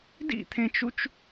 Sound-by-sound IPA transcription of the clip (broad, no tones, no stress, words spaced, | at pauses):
dḭt̪ʰẽt͡ʃut͡ʃ